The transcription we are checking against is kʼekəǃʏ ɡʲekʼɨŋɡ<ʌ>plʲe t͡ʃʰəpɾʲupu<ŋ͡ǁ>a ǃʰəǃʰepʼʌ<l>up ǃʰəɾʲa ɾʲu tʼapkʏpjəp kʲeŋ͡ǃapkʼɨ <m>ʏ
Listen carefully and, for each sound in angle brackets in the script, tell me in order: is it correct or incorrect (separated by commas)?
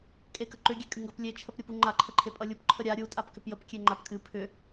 correct, incorrect, incorrect, incorrect